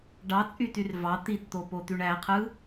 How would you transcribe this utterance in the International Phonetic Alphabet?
ɖ ɑ t͡sʼ y t y r v ɑ t̪ i t t̪ o p o t̪ y ɳ æ qʰ ɯ

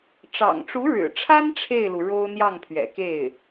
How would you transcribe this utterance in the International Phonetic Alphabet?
ʈ͡ʂ ɑ̰˨˩ ŋ ʈ͡ʂ u˧˥ ɻ ɻ̩˨˩ ʈ͡ʂʰ a˥ n ʈ͡ʂʰ e˥˩ ɪ̯ l u˩ ɻ o˥ ʊ̯ n̪ j ɑ˥˩ ŋ pʰ ɥ ɛ̰˨˩ k e˥˩ ɪ̯

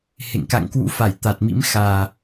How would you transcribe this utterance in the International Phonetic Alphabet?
h ḛ˧˨ ŋ k a̰˧˨ ŋ k w ṵ˧˥ f a˧˩ j t̪ a˨˩ t̚ m ḭ˧˥ m x aː˨˩

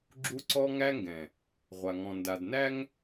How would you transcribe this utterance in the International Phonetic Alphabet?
ɡ͡ǁ u˦ ǀ ɔ˦ ŋ æ˦ ŋ ɡ ɛ̃˨ | ʁʷ a˨ ŋ ɔ̃˨ n d a˨ d n æ˦ ŋ

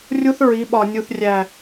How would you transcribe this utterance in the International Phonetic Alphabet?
rʲ u˦ θ ɹ i˨˦ ɓ ɒ˨ nʲ u˨ θ rʲ æ˨

